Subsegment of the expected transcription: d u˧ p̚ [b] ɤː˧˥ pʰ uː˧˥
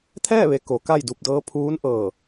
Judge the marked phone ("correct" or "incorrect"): incorrect